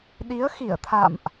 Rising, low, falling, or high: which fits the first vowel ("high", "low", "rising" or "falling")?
rising